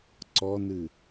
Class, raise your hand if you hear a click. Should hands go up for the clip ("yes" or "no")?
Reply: yes